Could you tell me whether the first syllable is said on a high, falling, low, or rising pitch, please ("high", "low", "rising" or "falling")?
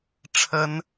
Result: high